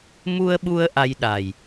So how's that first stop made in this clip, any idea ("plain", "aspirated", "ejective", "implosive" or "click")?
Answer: implosive